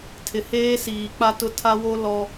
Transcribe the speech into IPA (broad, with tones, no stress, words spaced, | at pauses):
tʰɪ˨heː˦siː˨k͡pa˦ tʊ˦tʰa˦ wo˦ lɔ˦